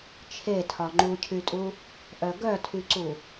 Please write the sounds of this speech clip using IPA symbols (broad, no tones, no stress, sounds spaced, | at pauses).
t͡ʃʰ e tʰ ɒ ŋ͡ǃ u cʰ y tʼ u | ʔ œ ɡ œ tʰ y ǀ u